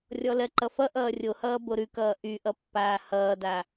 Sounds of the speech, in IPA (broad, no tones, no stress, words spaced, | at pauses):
rʲɔlɜǃʌfʌ ʔʌːrʲohʌː boɾʉkʌː ʔyʔʌpːaː hʌːda